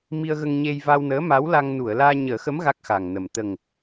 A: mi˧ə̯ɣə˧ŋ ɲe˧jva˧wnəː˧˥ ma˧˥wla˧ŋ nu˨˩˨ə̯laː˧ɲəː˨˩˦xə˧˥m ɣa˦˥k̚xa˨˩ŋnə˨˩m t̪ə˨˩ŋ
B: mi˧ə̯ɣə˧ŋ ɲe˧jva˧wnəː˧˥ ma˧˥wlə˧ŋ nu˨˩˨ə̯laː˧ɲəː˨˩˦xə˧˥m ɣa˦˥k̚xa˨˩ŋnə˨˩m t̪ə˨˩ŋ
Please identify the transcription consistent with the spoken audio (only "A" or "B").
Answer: A